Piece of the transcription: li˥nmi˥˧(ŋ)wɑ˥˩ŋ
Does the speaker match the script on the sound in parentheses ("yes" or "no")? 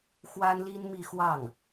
no